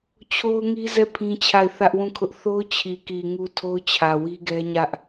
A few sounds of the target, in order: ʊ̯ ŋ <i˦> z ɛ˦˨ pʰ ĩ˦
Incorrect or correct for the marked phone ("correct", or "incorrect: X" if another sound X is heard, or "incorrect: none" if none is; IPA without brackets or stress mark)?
correct